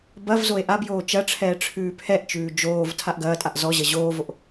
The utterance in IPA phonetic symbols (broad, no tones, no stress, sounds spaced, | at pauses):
b ɐ v z o e̯ ʔ a b j oː t͡ʃ ɐ ʈ͡ʂʰ ɛː ʈ͡ʂʰ ʉː pʰ ɛ ʔ t͡ʃ ʉː d͡ʒ oː v tʰ a ʔ ɡ ɐː tʼ a ʔ z ɔ ʑ ɐ ʑ oː v o ʔ